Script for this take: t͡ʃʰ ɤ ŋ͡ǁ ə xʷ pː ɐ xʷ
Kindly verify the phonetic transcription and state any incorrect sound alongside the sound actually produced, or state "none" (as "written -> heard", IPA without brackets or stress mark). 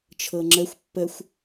ɐ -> ə